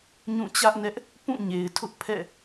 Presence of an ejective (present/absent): absent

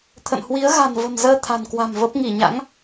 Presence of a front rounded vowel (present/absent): absent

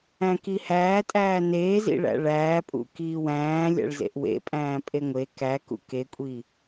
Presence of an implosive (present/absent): absent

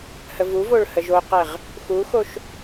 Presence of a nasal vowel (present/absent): absent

